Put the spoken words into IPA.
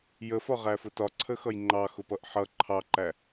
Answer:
j ə f ɒ ʁ æ f ʊ t ɒ ǀʰ ə x ʌ j ŋ͡ǃ ɑ x ʊ p ʌ ʔ ħ ʌ ǃʰ ɑ ǃ æ

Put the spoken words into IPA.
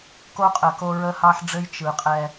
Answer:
k o˦ qʼ ə˨ k o˦ ɹ ə˦ h ɑ˦ ħ ɖ͡ʐ ɘ˦ j t͡ʃ ɯ˨ qʼ ɛ˦

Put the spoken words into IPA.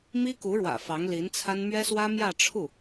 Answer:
m i˥ k u˧˥ ɻ w ä̰˨˩ f ɑ˧˥ ŋ l i˧˥ n t͡sʰ a˥ n m ɥ ɛ˥ s w ä˥ m j ä˥˧ ʈ͡ʂʰ u˥˩

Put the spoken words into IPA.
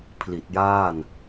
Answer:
pʰ l i˨˩ t̚ j aː˥˩ n

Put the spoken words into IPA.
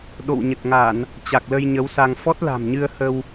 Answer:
ɗ o̰˧˨ w ɲ ə˨˩ t̚ ŋ a˧˩˨ n | t͡ɕ a˨˩ k̚ l ə˧ j ɲ ə˨˦ w s a˧ ŋ f ɔ˦˥ t̚ l a̤˨˩ m ɲ ɨ˧ ə̯ h ə˧ w

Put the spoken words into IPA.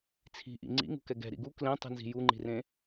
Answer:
t͡sʰ i̤ ʔ ḭ ŋ͡ǀ ḭ ŋ ṳ k ɛ ɡ ɛ̤ ɾ ḭ ɡ u k l ẽ tˤ i̤ n z i̤ j u ŋ͡ǃ i̤ r ẽ

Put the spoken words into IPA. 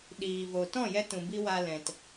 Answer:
ɗ iː˨ v o˨ t ɔ̃˦˨ j ɛ˦ t ũ˨ b i˧ w a˧ l ɛ̃˨ t

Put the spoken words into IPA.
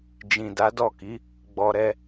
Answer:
d͡ʒ ĩ˨ d a˨˦ d ɔ˦˨ k i˨˦ | ɡ͡b ɔ˧ ɾ ɛ˧

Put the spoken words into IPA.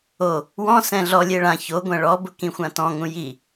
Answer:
o | w ɔ̃ s ɛ̃ ɮ ɔ lʲ e ɭ ã ç o ɡʷ ɛ̃ ɭ ɔ b ʊ k ĩ xʷ ã t ɔ̃ ŋ ũ j i

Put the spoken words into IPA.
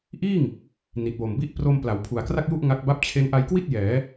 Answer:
ʔ iː˥˩ ŋ | n i˨˩ t̚ w o˨˩ m b i˥˩ ʔ p r o˧ m p l a˩˦ w pʰ u˨˩ a̯ k r a˥˩ k̚ j u˥˩ ʔ ŋ a˦˥ k̚ b a˥˩ p̚ t͡ɕʰ e˦˥ n ʔ a˧ j k w i˥˩ t̚ j ɛː˩˦

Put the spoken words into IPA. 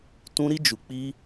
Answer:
t ũ˧ ɾ i˧ d͡ʒ u˨ k͡p i˧

